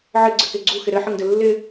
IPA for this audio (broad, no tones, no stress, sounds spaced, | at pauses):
ʕ ɘ ɡ͡ǀ ɘ k e ɡ͡ǀ u x ɪ ɾ ɘ ħ ə ŋ d ɘ lː ɪ